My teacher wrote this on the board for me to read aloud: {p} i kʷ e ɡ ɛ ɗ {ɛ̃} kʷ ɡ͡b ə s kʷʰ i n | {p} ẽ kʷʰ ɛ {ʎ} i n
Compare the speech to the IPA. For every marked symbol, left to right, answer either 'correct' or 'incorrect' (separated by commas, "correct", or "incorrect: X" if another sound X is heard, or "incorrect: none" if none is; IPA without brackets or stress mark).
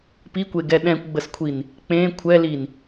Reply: correct, correct, incorrect: k͡p, incorrect: l